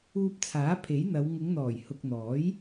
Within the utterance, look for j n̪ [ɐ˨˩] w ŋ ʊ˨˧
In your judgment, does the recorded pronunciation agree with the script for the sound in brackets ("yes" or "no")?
no